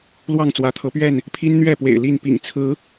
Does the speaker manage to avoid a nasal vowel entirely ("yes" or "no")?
yes